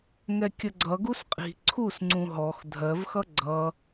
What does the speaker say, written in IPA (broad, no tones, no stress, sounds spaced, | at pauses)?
ŋ ɛ kʲ ə ɡ͡ǀ ʌ ɡ u s qʼ i̤ ǀʰ u s ŋ͡ǀ ũ ɦ ɔ x dʱ ɜ v x ʌ ɡ͡ǀ ʌ